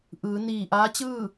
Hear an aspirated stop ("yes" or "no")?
no